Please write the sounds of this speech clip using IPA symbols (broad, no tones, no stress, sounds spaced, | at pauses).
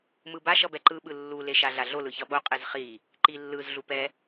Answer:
m ɯ b a ʃ ʌ b ɛ ǃ ɯ ɓ ɯ lː u l e ʃ a ɮ a ɮ o l ɯ ç ʌ ɓ o qʼ e z χ i | ǃ i lː ɯ z ɮ u p ɛ